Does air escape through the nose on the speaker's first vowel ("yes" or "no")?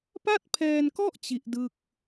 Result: no